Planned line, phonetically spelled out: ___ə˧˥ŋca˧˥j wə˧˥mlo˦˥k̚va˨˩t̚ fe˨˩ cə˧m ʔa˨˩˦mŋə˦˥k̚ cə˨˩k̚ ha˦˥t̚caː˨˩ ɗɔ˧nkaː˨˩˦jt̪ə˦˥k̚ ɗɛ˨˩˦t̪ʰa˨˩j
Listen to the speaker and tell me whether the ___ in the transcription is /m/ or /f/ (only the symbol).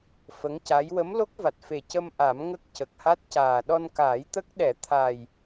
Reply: f